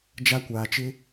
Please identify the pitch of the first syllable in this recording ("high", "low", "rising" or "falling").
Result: high